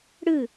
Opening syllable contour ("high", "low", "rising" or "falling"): falling